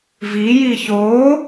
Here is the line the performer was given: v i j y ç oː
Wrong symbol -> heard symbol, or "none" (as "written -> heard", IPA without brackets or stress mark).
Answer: y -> i